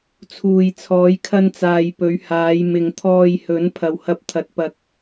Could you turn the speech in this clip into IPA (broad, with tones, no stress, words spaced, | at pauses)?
t͡sʰuː˨jt͡sʰɔː˨˧jkʰɐ˧nt͡saː˨j pɵ˨˧ɥhaː˨˧j mɪ˨ŋt̪ʰɔː˧jhɵ˨˥n pʰɐ˨whɐ˧p̚t̪ʰɐ˨˥t̚ pɐ˨˥k̚